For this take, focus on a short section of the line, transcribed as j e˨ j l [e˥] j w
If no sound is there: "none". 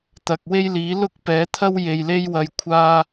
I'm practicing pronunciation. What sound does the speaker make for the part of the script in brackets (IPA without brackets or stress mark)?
e˥